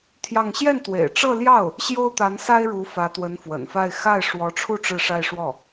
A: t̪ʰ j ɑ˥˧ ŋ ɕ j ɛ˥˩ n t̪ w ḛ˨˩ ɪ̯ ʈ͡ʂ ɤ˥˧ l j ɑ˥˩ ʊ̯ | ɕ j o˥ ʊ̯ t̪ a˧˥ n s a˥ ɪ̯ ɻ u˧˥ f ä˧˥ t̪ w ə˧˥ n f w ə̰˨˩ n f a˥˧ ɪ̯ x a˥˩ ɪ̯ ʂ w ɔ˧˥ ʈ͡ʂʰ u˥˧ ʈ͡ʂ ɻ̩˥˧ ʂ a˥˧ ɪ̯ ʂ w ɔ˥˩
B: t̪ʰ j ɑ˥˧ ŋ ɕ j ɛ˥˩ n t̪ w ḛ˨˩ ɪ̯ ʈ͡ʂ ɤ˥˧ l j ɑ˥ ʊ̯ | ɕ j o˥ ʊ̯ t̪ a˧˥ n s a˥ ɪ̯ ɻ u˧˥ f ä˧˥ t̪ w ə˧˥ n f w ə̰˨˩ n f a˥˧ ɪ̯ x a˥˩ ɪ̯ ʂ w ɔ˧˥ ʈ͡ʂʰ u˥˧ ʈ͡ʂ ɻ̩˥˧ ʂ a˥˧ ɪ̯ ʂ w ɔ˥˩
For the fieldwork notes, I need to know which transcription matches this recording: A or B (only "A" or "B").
A